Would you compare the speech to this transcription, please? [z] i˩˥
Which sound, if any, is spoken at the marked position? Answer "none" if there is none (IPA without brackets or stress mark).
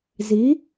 z